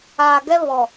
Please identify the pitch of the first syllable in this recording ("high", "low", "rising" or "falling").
low